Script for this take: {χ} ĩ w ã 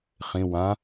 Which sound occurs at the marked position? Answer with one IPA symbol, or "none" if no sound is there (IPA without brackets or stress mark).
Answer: χ